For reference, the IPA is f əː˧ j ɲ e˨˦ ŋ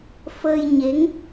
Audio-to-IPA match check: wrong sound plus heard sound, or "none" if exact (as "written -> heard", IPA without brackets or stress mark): none